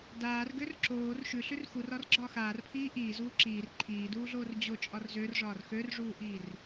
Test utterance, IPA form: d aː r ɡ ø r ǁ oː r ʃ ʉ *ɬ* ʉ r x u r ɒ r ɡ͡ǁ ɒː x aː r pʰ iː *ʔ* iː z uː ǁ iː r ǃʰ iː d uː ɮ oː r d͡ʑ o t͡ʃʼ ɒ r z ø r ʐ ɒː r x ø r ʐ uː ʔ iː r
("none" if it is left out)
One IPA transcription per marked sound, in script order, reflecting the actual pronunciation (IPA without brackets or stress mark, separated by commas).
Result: ɬ, ʔ